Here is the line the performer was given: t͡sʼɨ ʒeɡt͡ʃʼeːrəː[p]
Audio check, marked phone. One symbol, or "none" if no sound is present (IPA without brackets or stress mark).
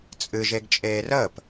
p